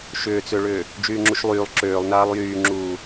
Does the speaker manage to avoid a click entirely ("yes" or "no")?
no